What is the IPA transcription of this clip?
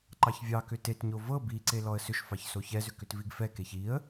ǃ ɑ ç vʲ ɑ k ʏ t e t ɲ o v ɤ b i ǀ e l ɔ ə̯ s ʏ ʃ f ɑ ç s o ç ɛ z ʏ k ʏ t v i ɡ f ɛ k e ç i ə̯

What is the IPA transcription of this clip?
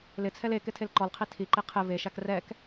l ɪ t͡sʰ ɛ l e k ɪ tʰ e l ǃ ɔ l qʰ i tʰ i ǃ i qʰ ɪ v e ʃ a k r ɛ k

